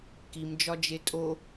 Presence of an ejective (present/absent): present